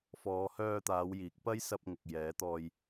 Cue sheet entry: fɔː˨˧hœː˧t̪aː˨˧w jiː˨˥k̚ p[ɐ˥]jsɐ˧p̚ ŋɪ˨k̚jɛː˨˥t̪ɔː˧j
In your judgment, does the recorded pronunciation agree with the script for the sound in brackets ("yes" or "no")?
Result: yes